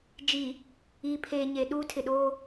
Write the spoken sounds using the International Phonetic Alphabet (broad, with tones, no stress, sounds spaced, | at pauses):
d͡ʒ i˨ | iː˨ pʰ eː˨ ɲ e˨ ɗ uː˦ tʰ ɪ˨ ɗ oː˦